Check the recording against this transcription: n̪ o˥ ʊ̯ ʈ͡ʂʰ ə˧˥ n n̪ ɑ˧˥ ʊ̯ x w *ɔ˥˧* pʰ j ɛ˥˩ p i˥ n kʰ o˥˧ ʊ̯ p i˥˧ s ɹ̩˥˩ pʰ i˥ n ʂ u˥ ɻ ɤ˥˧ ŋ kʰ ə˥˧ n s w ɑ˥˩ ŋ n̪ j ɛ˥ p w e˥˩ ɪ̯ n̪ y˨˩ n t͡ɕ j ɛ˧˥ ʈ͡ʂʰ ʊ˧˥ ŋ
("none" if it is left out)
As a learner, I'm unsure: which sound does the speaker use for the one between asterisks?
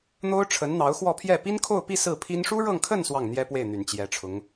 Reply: ɔ˥˧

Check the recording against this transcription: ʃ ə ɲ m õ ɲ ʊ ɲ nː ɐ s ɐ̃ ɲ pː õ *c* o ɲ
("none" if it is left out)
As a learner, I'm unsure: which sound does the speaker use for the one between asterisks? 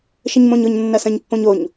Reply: ɲ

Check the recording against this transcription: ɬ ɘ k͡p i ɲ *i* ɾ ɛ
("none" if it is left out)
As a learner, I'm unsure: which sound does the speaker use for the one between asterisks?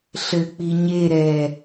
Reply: e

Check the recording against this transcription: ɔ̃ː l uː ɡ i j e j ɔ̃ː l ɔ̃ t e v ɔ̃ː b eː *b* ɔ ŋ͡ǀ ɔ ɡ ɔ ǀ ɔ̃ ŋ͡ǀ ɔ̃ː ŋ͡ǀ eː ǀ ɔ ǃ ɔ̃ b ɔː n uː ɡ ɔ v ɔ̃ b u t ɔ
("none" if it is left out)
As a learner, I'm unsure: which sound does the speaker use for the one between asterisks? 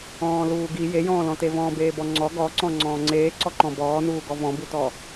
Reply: b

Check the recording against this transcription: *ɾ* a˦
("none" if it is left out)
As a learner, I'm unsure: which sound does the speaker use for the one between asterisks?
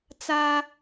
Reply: t͡s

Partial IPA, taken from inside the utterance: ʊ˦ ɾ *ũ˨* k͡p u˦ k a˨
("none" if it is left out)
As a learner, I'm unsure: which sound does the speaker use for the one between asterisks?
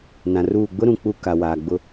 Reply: ũ˨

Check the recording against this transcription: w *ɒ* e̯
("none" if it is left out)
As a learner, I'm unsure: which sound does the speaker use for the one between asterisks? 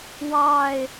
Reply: ɑ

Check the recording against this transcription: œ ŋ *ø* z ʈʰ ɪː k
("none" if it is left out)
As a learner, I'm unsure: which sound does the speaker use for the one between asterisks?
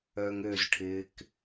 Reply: ø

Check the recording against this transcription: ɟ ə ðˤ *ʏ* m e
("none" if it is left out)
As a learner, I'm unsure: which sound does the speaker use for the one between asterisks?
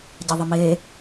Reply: ə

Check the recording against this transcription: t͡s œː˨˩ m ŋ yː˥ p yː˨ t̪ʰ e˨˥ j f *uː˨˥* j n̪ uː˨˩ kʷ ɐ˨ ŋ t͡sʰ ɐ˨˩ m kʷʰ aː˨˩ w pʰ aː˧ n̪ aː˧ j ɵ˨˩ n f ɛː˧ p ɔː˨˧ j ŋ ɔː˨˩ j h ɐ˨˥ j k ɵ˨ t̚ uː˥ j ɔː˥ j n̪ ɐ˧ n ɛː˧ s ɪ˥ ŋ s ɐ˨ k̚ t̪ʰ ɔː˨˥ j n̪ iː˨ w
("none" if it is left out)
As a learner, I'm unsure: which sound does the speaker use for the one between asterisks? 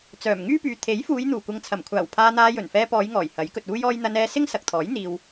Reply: uː˨˧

